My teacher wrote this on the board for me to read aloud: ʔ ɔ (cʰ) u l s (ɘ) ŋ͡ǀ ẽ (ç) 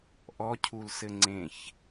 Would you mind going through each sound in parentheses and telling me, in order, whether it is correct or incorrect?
correct, correct, correct

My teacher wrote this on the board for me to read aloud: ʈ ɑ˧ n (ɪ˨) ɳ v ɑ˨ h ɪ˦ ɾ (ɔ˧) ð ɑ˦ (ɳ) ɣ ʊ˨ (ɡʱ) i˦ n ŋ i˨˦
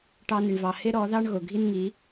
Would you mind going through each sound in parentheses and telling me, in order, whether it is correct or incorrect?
correct, incorrect: ɔ˨˦, correct, correct

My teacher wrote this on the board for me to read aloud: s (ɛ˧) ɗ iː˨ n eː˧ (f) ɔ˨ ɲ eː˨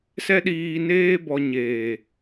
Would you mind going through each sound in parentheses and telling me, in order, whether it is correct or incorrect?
correct, incorrect: b

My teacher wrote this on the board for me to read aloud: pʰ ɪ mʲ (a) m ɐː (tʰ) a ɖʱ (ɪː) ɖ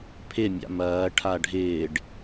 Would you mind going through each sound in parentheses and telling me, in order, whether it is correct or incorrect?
incorrect: a̰, incorrect: ʈʰ, correct

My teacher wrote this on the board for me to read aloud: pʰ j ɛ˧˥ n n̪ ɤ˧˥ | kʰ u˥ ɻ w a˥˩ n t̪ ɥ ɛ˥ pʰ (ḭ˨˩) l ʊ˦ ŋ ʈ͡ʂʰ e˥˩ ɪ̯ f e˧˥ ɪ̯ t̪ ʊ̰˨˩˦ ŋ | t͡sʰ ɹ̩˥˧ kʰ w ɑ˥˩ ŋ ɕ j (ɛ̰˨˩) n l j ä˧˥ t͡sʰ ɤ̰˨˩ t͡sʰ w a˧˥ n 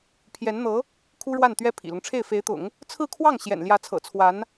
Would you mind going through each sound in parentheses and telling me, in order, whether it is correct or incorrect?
correct, correct

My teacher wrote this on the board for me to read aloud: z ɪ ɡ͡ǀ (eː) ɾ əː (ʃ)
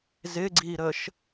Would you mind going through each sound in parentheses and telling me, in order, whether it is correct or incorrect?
incorrect: iː, correct

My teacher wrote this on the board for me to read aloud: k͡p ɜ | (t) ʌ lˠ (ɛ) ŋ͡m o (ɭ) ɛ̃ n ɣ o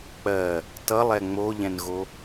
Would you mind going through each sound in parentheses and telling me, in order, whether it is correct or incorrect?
correct, correct, incorrect: ʎ

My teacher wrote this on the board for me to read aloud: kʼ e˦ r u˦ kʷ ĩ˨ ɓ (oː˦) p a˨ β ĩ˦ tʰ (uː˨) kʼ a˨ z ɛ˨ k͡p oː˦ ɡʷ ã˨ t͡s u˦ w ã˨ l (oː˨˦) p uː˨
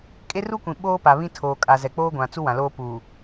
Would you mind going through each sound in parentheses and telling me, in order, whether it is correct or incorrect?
correct, incorrect: oː˨, incorrect: oː˦

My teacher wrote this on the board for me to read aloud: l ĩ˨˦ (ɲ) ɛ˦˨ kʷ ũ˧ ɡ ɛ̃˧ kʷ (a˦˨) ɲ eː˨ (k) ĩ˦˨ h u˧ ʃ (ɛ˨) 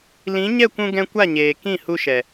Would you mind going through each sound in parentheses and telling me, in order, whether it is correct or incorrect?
correct, correct, correct, correct

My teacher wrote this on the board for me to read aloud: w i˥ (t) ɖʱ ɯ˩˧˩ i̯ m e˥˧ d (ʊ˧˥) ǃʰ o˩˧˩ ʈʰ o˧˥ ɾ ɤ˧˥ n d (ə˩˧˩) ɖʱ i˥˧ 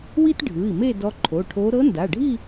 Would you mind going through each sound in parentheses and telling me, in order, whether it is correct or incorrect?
correct, incorrect: ɔ˧˥, incorrect: a˩˧˩

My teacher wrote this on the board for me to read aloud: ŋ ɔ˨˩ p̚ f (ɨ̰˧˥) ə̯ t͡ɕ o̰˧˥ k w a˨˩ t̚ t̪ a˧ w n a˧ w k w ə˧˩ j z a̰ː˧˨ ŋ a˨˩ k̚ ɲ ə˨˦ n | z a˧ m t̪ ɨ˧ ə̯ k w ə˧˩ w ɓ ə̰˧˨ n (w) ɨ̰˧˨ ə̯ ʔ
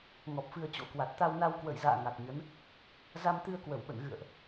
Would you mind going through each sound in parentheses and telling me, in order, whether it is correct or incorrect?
incorrect: ɨ˧, incorrect: ɣ

